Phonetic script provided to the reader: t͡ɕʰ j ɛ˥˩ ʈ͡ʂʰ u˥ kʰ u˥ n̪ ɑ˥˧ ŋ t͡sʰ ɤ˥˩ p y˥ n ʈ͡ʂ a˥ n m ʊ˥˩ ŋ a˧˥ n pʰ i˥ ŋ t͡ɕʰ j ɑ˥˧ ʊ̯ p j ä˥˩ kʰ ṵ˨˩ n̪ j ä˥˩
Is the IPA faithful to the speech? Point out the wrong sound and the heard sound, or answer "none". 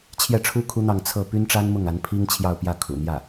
none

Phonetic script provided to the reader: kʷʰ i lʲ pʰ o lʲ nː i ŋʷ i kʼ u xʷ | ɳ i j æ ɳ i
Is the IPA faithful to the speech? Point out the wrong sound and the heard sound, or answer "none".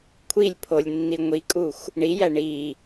none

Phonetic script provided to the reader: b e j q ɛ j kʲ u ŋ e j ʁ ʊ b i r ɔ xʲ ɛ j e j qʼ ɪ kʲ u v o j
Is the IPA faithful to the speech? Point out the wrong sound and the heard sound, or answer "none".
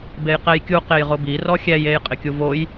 ŋ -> q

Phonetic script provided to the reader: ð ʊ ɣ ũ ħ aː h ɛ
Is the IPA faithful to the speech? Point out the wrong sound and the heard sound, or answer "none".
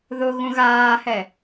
ħ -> ɣ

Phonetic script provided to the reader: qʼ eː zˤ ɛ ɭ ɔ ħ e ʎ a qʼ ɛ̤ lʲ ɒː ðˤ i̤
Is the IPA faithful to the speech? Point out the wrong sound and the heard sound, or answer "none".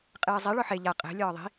none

